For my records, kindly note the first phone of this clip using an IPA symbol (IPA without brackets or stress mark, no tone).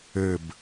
ɘ